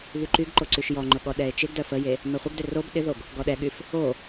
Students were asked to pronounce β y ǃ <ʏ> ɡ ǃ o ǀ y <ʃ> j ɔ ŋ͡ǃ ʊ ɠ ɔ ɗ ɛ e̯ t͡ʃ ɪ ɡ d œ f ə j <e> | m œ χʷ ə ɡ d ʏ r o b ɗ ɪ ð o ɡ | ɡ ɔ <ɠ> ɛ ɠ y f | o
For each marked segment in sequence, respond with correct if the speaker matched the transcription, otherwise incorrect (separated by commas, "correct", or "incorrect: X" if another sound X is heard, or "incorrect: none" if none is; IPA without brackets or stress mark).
incorrect: y, correct, correct, incorrect: ɗ